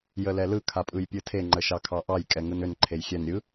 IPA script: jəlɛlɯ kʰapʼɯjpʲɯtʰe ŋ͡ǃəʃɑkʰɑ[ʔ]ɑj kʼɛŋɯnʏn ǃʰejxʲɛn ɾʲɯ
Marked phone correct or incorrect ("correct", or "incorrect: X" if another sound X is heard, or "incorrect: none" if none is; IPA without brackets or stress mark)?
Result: correct